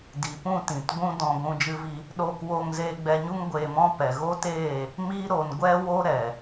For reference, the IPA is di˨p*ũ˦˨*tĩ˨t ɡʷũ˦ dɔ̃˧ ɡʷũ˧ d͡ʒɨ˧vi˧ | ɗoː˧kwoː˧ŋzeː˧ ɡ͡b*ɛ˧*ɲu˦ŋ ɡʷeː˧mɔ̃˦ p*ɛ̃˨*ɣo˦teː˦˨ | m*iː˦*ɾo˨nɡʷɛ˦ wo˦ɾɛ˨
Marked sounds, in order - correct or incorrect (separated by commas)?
correct, correct, incorrect, incorrect